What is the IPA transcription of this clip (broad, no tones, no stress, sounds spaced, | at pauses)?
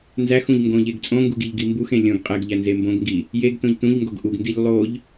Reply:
n z æ x ũ ʎ ŋ ɡ õ ʎ e ɡ t͡sʼ õ ŋ ɡ u ɡ i ʎ ɡ i m b u x ẽ lʲ õ ɡ qʼ e ɡ ʎ æ n z e m b õ ɡ ŋ ɡ i | j e ɡ t õ ʎ t ũ ʎ ŋ ɡ o ɡ ʔ u ɡ n d i ʎ lˠ o ʎ